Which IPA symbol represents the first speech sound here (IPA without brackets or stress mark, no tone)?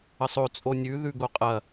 ə